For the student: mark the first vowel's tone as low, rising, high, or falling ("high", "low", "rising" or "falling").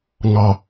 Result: low